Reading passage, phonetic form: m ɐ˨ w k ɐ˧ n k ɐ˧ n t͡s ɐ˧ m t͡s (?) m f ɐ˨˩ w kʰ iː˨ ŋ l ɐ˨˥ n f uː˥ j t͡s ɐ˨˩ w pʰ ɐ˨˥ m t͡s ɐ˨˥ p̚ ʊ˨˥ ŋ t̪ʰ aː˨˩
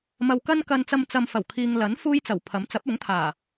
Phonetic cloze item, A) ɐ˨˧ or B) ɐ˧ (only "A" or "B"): B